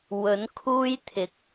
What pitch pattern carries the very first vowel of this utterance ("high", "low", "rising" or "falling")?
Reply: rising